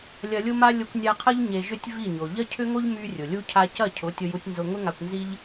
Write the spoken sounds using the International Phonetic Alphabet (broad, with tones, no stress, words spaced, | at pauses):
lʲɐ˨lʲʊ˧ma˧ lʲʊ˧kʷnʲa˧qʰɐ˦ʎ ɲe˨ʒʏ˧tʲ vi˦˨ɲo˨ ʎɐ˦cʰʏ˦ŋo˦ʎ my˧ rʲʊ˨lʲu˦ cʰa˧cɐ˦˨cʰʊ˨˦ tʲʊ˧ju˧tʲnzʊ˧ ŋʊ˦ŋa˧kʷnzi˦ʎ